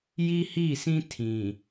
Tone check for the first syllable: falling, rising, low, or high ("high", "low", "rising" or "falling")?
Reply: high